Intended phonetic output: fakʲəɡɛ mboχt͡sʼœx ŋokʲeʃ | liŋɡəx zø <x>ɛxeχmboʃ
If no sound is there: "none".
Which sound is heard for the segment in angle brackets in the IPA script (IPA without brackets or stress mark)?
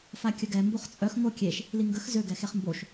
ɡ